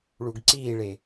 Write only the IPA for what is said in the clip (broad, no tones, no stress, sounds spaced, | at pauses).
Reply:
ɭ u ɡ ǀ iː ɭ e